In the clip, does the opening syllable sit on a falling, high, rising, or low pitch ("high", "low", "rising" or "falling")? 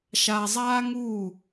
low